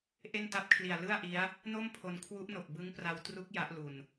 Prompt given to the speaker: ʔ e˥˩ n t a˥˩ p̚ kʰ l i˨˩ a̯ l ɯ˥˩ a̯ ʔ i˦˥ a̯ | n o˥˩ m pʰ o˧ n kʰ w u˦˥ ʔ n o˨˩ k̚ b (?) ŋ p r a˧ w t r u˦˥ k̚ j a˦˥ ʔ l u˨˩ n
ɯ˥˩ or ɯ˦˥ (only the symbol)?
ɯ˦˥